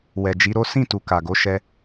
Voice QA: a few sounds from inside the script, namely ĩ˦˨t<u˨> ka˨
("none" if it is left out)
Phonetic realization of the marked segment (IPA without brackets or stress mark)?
u˨